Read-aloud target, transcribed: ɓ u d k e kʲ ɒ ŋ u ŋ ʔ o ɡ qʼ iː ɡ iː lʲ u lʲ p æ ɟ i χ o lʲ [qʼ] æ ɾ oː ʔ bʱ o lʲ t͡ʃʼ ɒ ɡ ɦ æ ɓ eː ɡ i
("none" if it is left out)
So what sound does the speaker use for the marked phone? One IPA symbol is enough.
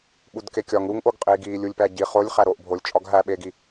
χ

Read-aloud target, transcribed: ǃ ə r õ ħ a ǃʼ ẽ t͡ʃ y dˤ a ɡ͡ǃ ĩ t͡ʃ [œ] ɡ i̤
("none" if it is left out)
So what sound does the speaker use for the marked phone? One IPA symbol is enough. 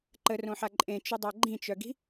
œ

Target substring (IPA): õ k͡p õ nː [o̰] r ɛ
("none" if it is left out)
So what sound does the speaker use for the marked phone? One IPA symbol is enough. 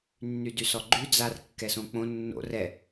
o̰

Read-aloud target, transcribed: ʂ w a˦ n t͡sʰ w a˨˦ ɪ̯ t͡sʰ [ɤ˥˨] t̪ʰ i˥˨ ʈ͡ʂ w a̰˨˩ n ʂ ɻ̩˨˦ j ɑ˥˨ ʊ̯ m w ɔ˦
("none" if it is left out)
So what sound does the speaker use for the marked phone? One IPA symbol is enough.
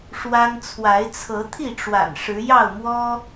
ɤ˨˦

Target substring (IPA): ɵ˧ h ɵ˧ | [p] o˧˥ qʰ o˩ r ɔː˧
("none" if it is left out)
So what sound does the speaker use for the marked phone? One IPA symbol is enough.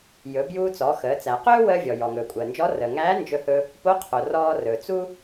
p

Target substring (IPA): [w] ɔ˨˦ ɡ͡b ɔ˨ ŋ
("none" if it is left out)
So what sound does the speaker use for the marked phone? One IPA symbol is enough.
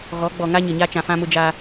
ɣ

